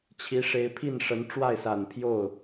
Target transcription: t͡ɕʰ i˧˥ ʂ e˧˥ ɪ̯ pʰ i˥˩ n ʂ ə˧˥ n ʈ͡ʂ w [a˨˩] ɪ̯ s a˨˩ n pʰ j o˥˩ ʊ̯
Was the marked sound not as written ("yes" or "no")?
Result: yes